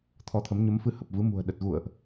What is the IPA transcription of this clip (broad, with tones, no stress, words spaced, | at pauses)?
t̪ʰɔ˧t̪ʰə˨˦m ɲə˨˦mfɨ˧ hə˨˩p̚vɨ˨˦ mṳ˨˩ə̯ ɗə˨˩t̚ ɣṵ˧˨ə̯ʔ